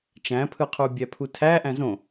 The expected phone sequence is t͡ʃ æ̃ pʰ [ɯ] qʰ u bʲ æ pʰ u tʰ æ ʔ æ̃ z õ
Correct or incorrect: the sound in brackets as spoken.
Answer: correct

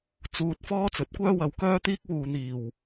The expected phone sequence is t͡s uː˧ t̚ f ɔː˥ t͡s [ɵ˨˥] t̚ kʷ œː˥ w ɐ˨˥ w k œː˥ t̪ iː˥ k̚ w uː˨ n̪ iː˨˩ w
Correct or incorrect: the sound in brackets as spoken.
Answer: correct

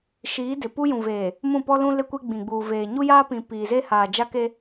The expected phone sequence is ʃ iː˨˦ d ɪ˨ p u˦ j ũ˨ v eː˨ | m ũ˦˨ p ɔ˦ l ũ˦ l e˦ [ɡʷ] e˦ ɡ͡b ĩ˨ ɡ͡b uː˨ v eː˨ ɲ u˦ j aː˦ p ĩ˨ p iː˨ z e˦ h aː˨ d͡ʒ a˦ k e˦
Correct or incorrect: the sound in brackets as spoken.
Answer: incorrect: kʷ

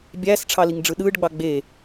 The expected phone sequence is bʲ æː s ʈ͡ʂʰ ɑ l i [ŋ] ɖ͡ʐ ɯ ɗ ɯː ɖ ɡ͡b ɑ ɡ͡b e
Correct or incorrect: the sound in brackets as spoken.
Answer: correct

